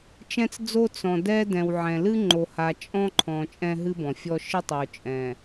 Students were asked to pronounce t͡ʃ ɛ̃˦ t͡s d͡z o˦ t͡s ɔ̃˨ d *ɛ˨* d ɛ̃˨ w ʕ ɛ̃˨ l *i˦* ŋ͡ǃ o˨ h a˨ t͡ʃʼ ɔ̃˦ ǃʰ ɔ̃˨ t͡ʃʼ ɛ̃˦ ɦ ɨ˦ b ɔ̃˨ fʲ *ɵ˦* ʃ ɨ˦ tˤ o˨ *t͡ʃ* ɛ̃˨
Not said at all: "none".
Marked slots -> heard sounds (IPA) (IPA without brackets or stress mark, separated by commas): ɛ˦, ɨ˦, ɔ˦, t͡ʃʼ